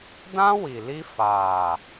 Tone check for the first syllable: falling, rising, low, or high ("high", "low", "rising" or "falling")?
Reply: high